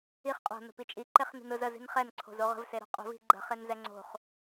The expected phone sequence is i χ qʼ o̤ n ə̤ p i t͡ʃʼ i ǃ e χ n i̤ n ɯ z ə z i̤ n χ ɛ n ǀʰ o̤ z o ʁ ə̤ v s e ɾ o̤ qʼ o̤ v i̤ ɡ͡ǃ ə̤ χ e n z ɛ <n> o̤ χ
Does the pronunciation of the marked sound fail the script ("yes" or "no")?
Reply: yes